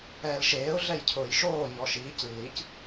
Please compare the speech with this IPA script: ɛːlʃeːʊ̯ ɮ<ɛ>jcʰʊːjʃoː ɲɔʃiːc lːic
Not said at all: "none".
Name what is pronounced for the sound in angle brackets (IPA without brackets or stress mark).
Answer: ɛ